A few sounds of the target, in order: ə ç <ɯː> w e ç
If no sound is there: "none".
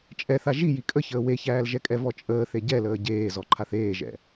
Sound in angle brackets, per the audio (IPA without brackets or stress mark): əː